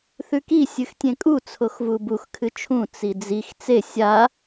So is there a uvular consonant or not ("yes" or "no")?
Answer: no